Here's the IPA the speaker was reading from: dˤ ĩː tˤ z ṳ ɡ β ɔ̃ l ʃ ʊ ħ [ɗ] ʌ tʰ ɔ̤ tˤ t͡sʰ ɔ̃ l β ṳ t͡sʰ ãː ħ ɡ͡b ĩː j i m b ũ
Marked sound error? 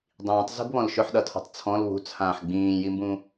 no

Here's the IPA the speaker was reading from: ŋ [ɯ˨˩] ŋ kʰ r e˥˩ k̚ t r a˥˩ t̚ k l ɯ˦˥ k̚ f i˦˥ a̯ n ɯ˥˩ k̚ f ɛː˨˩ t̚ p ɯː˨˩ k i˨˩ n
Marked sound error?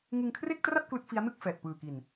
yes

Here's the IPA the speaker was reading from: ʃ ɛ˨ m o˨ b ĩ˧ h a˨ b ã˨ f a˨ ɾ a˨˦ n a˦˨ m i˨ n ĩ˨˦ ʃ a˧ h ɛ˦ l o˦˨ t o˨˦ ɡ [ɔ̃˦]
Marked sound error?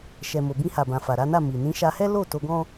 no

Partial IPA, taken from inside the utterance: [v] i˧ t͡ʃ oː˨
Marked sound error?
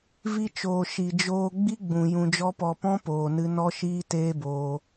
no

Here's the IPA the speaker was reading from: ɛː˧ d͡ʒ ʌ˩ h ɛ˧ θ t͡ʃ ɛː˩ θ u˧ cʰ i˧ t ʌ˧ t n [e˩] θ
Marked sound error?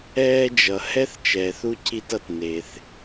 no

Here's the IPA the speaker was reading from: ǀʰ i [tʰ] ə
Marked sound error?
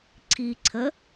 yes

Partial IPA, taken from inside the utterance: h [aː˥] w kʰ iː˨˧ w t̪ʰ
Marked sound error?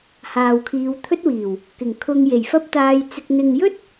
yes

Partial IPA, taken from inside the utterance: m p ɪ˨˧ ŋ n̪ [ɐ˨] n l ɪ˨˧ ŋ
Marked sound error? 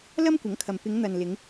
no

